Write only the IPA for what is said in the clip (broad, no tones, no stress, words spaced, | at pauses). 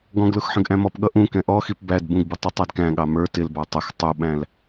ɡɔ̃ɡlʊx ħə̃ɡʔæ̃mɔpɠʌ ʔũkɛ̃ ʔɔxip bæd bũɡbɪ tˤutˤɑdkæ̃ɠɑ mə˞ tɪlbɑ tˤəx tˤuɓæ̃l